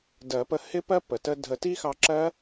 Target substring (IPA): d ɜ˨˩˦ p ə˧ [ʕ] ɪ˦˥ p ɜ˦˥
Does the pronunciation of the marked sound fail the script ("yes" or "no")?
yes